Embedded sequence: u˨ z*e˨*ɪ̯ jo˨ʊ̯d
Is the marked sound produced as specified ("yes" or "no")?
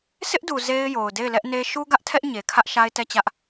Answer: no